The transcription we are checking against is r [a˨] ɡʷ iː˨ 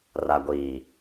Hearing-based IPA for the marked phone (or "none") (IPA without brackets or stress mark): a˨